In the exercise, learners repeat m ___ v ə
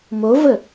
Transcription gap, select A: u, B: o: B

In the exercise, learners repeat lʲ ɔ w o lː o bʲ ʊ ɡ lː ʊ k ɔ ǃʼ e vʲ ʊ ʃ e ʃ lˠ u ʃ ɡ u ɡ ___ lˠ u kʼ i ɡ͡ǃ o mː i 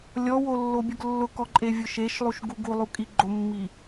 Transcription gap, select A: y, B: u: B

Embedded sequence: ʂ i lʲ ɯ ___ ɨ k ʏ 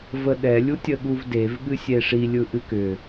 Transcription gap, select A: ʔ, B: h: A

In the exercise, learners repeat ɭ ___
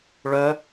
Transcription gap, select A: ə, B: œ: B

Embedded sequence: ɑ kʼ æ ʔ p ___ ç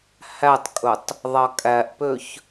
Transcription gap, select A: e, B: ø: B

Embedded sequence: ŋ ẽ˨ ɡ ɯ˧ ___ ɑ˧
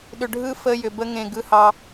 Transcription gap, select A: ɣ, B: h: B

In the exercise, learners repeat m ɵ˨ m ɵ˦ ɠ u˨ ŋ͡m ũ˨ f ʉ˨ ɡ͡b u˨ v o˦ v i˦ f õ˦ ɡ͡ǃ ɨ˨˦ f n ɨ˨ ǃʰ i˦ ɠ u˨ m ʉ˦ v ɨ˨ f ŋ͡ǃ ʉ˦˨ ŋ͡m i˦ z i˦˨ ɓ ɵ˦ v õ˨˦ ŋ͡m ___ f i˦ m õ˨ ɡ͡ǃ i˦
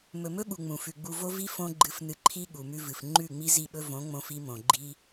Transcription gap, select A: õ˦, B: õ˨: A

